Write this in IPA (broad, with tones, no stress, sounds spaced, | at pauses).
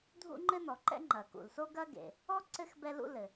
dʱ ṵ˥ ŋ͡ǃ ɘ˥ n ɔ˩ ǃ ɛ̰˥ ŋ͡ǃ ɐ˩ k ṵ˩ l s o˥ ɡ ɐ˥ ɡ ḛ˩ | ɔ˥ ǀ ɘ˥ x b ɛ˥ l ṵ˥ l ɘ˩